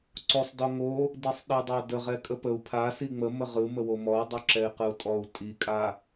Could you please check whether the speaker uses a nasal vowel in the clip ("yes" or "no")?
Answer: no